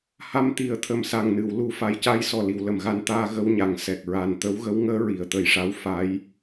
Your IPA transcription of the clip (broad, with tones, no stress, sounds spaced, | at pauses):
h a˧ m t̪ i˨˩˦ ə̯ t̪ʰ ə˨˩ m s a˨˩ ŋ n ɨ˨˩˨ w l u˨˩ f a˨˩ j c a˧ j s ɔ˨˩ l i˨˩˨ w l ə˨˩˨ m ɣ a˧ n t̪ aː˧ ɣ ə˧ w ɲ a˨˩˨ ŋ s ɛ˨˩ k̚ ɹ a˨˩ n t̪ ə˧˥ w ɣ ə˧˥ w ŋ əː˧˥ ɹ i˨˩˨ ə̯ t̪ ə˨˩ j ʂ a˧˥ w f a˧˥ j